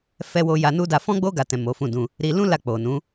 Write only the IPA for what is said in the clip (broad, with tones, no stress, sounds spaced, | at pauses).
f ɛ˦ w o˦ j a˧ n u˦ d a˧ f ɔ̃˦ ɡ͡b o˦ ɡ a˧ t ɛ̃˨ m o˨˦ f ũ˦˨ d ũ˧ | ɾ i˧ l ũ˦ l a˦˨ k͡p o˨ n ũ˨˦